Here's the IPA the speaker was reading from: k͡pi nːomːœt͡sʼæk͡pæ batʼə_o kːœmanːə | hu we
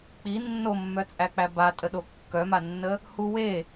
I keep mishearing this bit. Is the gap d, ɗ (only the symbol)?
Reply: ɗ